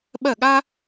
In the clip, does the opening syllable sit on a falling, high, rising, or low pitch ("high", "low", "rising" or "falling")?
falling